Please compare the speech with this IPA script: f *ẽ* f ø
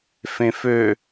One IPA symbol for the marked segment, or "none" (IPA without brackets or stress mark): ẽ